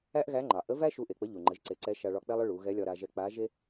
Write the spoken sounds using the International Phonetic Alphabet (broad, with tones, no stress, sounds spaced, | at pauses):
æ˥ ʔ ɣ æ˧˥ ŋ͡ǃ ɑ˩ ʔ ə˧˥ v æ˥ ʃ u˧˥ ʔ e˩ k͡p ə˧˥ ʎ u˩ ŋ͡ǃ ə˩˧ ʒ ǀ e˩˧ ǀ ɛ˧˥ ʃ a˧ ɭ ɒ˧ k͡p ɛ˥ lˠ ə˥ ɭ u˩˧ ɣ ɛ˧˥ lʲ ɒ˧ ɾ a˧ ʒ ɛ˧ k͡p a˧˥ ʒ e˥